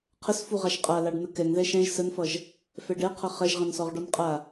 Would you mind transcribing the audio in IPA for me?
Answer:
qʰ ə s f u ʁ a ʃ qʼ a l a ɖ n̪ ə k ɛ ŋ ð ɛ ʃ ɛ̃ ʒ s ə n f ʌ ʒ | f ɛ ɖ ɛ qʰ ʌ χ ɛ ʒ ʁ ɛ̃ n s ɔ ʁ ɖ ɔ n qʼ a

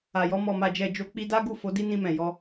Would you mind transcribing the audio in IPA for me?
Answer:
a˨ j ɔ˧ m ɔ˨ m a˨ d͡ʒ ɛ˨ d͡ʒ o˨˦ k͡p i˧ d a˦ ɡ u˦˨ f o˨˦ d i˦ n ĩ˧ m ɛ̃˨ j ɔ˧

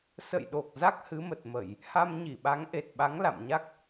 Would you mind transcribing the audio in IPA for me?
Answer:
s ə̰˧˨ j ɗ o˨˩ k̚ z a˦˥ k̚ h ɨ˨˦ m ə˨˩ t̚ m ə˧˩˨ j | h a˧ m ɲ i˧˩ ɓ a˨˦ ŋ ʔ e˨˩ t̚ ɓ a˨˦ ŋ l a̰˧˨ m ɲ a˦˥ k̚

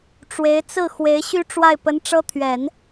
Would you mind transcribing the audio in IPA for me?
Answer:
ʈ͡ʂ w e˧˥ ɪ̯ t͡s ɹ̩˥˩ x w e˧˥ ɪ̯ ɕ y˥ ʈ͡ʂ w a˥˩ ɪ̯ p ə˧˥ n ʈ͡ʂ ɤ˥ t̪ʰ ɥ ɛ˨˩˦ n

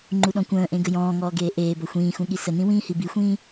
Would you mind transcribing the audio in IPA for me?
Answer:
ŋ͡ǃ u ɗ ɔ̃ kʷ ə̃ː ʔ ẽ ɡ ə j ɔ̃ː ŋ ɔː ɡ eː ʔ eː b ʌ xʷ ĩː x ũ ɠ i s ə n ĩ w ĩː h i b i xʷ ĩː

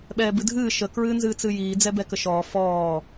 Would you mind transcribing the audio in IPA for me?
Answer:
ɓ ɛː b ɨ dʱ ɨː ʃ ə k ɹ ɨː n z ɨː t͡s ɨ j iː d͡z ɛ b ɛ k ə ʃ ɔː f ɔː

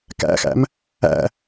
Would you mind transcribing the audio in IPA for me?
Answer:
k æ̰ x æ̰ m | æ̰

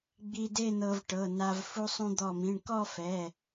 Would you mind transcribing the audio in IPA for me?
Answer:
ɡ͡b i˧ d e˥˧ n̪ ɤ˧ v ʈ ɤ˩˧˩ n a˧ v f u˧ sˤ ũ˧ d̪ ɔ˧˩ m ĩ˩˧˩ ɳ k ɔ˥˧ f ɛ˩˧˩

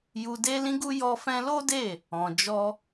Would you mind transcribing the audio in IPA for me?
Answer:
j u˧ d e˦ l ĩ˦ ɡ u˦ j ɔ˧ f ɛ̃˧ l o˦ d e˦˨ | ɔ̃˨ d͡ʒ ɔ˧

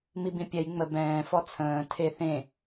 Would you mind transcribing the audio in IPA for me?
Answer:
m i b ĩ pʲ ɛ j ŋ͡m ə b ɛ̃ː f ɔ t͡sʰ ə̃ː tʰ e θ ẽ

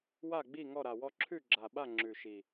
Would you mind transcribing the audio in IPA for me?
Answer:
w a˥˩ ɡ͡b i˥˩ ŋ ɔ˥˩ ɾ a˨˩ w ɔ˥˧ ǁʰ ʉ˥˩ ɡ͡ǁ a˨˩ ɓ a˥˩ ŋ͡ǁ ʉ˨˩ ʃ i˨˩

